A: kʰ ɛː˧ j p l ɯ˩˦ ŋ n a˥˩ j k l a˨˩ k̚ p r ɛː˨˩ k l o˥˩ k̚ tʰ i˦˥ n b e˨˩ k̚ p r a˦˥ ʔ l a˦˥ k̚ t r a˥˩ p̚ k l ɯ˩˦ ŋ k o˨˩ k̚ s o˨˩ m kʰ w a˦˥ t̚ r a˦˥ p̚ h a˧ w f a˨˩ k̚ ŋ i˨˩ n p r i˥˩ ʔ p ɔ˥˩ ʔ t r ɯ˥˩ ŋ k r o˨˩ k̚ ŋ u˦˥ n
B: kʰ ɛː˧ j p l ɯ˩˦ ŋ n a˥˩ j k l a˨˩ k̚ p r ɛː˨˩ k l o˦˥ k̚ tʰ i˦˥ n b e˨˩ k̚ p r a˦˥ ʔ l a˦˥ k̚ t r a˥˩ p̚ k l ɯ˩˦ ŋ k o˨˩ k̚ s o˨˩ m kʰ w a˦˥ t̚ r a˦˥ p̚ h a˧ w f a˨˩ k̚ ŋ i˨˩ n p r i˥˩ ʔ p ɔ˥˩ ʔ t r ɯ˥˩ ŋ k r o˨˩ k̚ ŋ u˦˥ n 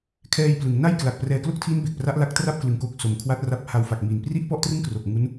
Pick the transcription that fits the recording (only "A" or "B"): A